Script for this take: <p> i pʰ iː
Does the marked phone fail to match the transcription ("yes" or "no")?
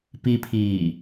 no